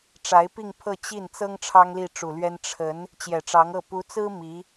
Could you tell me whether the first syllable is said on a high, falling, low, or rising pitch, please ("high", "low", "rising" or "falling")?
rising